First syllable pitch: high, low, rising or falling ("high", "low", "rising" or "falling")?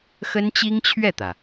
high